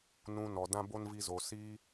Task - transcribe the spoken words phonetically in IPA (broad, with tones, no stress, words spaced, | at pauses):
nũ˧nɔ˨ dã˦bo˦nvi˧zo˨ siː˦